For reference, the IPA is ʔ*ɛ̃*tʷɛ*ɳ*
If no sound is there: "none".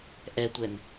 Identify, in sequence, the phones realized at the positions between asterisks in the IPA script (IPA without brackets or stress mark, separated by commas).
ɛ, n